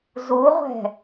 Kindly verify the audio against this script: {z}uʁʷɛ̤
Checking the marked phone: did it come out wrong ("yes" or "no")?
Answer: no